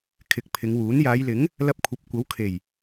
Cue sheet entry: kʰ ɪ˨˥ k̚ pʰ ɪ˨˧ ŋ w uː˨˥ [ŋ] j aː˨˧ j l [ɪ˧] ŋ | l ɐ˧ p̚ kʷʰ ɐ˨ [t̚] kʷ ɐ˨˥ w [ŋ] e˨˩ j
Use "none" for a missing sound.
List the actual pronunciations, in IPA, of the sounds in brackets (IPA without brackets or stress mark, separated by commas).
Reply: n, ɪ˨˥, p̚, kʰ